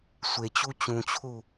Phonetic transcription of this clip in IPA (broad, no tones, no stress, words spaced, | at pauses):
sʷet͡ɕu t͡ɕũt͡ɕʰu